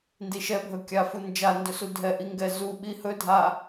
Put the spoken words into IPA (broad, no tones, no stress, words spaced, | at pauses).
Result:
ndiʃɛ bʱɵkʲa fund͡ʒa ndɵsudʱɛʔi ŋɡɛzu ɓihɵ dʱa